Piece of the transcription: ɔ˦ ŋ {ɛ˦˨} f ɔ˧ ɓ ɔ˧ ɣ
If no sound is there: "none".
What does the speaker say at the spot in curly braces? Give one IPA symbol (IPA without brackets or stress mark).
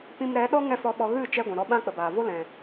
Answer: ɛ˦˨